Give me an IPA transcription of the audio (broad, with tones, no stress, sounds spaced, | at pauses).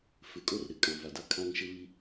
f ɪ˨ kʼ o˦ r ɾ ɪ˨ kʼ ã˨ v a˨ d a˦ kʰ ã˦ ŋ ʃ ɪ˦ β i˦